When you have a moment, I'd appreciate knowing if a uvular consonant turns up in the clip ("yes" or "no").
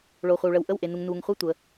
yes